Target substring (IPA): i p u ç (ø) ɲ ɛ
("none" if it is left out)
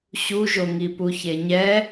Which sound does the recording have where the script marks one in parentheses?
e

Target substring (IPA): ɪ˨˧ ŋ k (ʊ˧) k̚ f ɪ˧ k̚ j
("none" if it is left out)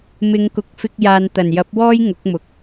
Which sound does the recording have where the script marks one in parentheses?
ʊ˨˥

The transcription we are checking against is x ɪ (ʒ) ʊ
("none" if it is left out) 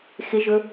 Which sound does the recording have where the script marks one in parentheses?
ʒ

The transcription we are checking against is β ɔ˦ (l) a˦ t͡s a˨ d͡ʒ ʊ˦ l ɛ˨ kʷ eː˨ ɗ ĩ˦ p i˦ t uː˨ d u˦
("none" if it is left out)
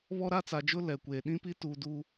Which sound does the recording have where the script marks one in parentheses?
ɾ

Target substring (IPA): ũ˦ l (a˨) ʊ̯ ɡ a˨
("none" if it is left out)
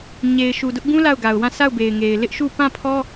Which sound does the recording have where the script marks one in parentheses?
a˦˨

